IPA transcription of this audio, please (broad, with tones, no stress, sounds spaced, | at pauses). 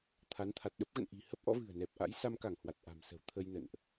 t̪ʰ a˨˦ n t̪ʰ a˨˩ t̚ ɗ ə˦˥ p̚ ɣ ə̰˧˨ n ʔ i̤˨˩ h ə˦˥ p̚ ʔ ɔ̰˧˥ v ɨ̤˨˩ ə̯ n ɛ˨˩ p̚ ʔ a̰˧˥ j s a˧ m k a˧˩ ŋ h w a˨˩ t̚ ʔ a̤˨˩ m s ə̤˨˩ w t̪ʰ ə˧ j n ə̰˧˨ n ʔ